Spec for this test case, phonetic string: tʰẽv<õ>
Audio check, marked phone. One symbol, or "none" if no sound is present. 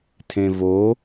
o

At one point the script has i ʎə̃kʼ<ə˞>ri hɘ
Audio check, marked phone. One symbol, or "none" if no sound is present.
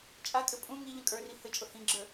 ə˞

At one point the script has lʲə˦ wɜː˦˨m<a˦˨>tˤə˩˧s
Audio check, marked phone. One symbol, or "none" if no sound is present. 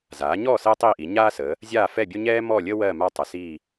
a˦˨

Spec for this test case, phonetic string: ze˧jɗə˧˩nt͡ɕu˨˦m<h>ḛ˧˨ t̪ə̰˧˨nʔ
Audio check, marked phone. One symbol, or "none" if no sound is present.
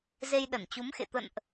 x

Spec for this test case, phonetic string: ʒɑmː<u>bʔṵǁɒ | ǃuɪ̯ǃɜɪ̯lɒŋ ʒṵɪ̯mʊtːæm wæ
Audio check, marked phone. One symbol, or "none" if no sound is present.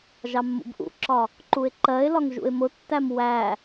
ṵ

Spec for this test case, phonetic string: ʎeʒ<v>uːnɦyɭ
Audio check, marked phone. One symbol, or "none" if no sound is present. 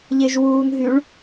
w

